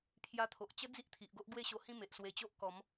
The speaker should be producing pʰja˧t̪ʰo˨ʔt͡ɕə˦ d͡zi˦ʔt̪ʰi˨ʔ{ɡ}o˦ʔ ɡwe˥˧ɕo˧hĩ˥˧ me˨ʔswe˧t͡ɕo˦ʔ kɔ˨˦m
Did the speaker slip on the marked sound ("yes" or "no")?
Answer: no